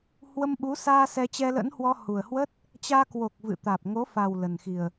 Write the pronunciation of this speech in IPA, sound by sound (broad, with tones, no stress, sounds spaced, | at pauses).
h w ə˧ m ɓ u˨˦ s aː˧ s ɛ˧ t͡ɕ ɛ˧ l ə̰˧˥ n h w ɔ˧ h u˨˩ ə̯ h w ə˦˥ t̚ | t͡ɕ aː˧ k w o˨˩ k̚ v ɨ̰˧˨ t̪ aː˨˩ p̚ ŋ o˨˦ f a˨˩ w l ə˨˩ n x i˨˩ ə̯